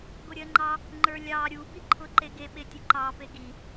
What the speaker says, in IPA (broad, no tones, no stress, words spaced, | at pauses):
ɡoɾʲɜŋ͡ǃɑ | ŋ͡ǃə˞lʲɑ ɾʲubiǃʰʊ ǃeɡeɓe tʲʊǃɑ peɡi